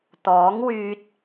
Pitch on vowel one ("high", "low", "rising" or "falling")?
rising